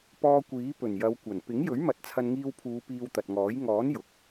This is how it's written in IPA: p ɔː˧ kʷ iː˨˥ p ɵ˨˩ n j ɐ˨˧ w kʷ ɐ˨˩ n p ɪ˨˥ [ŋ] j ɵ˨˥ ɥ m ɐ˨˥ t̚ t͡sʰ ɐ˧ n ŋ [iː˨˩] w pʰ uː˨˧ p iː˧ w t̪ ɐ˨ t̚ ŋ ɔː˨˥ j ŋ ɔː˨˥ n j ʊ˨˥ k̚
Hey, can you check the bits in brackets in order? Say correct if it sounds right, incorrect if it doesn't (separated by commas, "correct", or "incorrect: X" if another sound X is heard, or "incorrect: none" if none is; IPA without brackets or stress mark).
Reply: correct, incorrect: iː˧